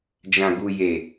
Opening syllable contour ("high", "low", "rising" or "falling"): low